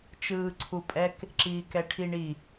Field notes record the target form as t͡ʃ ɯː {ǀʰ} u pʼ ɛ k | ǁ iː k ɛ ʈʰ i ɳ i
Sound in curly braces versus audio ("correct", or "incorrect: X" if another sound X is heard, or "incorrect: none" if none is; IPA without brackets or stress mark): correct